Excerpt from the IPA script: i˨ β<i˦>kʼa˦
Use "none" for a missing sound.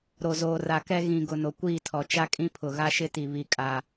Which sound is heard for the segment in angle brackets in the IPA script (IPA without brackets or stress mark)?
i˦˨